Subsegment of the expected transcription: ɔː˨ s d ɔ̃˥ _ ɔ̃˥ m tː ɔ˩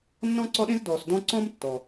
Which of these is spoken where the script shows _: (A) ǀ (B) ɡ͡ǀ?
A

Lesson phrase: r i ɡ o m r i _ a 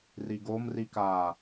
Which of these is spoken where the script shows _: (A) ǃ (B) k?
B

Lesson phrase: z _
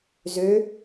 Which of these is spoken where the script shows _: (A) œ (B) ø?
B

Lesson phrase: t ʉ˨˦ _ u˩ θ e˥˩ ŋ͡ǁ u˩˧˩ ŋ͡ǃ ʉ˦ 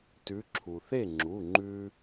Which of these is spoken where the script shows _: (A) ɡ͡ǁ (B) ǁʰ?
B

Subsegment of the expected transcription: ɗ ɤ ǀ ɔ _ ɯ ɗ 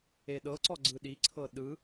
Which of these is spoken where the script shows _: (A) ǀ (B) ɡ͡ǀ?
B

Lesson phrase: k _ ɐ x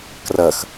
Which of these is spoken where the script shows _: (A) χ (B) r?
B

